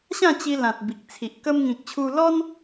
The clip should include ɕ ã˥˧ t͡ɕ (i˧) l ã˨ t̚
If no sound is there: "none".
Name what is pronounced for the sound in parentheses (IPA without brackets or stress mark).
i˧